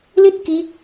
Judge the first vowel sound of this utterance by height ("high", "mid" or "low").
high